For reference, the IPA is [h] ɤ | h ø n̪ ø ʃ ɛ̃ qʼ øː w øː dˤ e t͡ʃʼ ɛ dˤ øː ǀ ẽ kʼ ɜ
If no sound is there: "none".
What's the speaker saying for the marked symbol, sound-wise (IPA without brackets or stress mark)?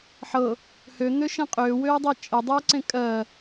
ħ